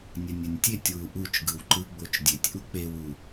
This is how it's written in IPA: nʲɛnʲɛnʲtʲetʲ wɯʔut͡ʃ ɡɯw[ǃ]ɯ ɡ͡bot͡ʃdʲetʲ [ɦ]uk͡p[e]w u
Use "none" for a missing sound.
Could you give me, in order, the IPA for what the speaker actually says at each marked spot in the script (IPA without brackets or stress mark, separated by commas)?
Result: ǃ, ʔ, e